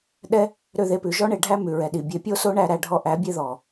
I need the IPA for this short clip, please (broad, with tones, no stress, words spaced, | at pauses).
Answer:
ɗɛ˦ | ɾø˦˨ðe˧pʉ˨ ʒɔ˦ɳe˨ɖʱæ˦ mʉ˨ɹɛ˨ɗi˨ bʲe˨pʲo˦so˦ɳæ˧ ɾæ˧ɖʱɔ˦ ʔæ˨˦bʲe˦ðɔ˨